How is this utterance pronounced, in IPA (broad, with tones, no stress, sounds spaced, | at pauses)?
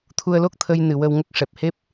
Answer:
t̪ʰ u˧ ə̯ l o˦˥ k̚ t̪ʰ ə˧ j n ɨ˨˩ w ə˧ w ŋ ə˦˥ k̚ ʂ ɛ˨˩ p̚ h e˦˥ p̚